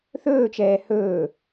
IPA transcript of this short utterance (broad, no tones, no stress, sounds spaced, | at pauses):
θ ɵː t͡ʃ ɛː h ɵː